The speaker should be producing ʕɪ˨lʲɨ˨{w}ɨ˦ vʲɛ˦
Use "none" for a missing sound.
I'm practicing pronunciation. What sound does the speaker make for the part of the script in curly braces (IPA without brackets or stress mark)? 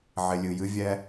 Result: j